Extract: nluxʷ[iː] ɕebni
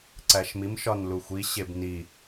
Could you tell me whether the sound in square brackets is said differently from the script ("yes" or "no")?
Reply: yes